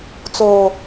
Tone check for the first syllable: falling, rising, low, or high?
low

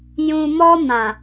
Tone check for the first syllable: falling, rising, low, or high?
low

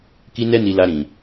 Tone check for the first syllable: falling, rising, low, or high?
high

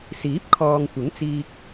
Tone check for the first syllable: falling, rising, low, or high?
rising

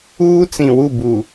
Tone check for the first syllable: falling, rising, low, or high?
high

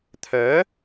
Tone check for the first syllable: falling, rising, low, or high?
rising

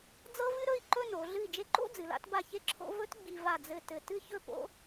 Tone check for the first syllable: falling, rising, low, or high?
high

